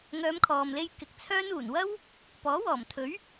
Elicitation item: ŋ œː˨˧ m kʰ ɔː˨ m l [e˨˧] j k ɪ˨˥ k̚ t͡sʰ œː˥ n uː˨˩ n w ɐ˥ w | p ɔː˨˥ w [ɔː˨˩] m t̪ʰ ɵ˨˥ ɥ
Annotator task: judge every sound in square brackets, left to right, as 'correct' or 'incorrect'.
incorrect, correct

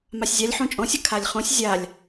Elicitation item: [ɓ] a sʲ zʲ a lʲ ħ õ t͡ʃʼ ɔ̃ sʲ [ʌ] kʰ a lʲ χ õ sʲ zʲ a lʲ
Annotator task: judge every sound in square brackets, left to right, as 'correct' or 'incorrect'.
incorrect, correct

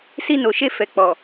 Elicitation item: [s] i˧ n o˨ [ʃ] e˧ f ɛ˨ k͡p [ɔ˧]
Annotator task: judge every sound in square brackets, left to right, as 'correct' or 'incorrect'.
correct, correct, incorrect

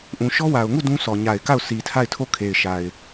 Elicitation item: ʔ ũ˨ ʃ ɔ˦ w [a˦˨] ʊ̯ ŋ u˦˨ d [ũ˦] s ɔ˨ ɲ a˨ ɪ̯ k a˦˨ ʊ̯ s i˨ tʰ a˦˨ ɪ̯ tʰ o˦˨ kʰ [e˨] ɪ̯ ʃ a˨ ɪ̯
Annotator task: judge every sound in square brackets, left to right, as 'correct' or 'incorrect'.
incorrect, correct, correct

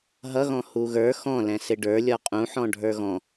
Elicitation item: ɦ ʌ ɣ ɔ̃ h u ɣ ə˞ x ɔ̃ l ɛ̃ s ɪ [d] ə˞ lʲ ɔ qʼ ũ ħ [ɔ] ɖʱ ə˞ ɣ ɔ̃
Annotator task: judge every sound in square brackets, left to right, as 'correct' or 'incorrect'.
incorrect, incorrect

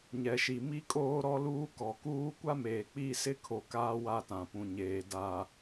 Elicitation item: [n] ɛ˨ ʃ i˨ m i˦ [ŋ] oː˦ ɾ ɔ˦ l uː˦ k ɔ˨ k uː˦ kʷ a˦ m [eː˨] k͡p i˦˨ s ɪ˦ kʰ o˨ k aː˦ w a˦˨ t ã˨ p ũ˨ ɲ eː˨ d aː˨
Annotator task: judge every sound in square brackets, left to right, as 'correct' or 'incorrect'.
incorrect, incorrect, correct

